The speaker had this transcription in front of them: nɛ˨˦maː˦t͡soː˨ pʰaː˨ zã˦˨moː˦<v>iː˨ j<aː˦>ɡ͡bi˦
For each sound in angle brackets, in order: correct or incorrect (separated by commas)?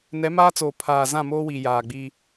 incorrect, incorrect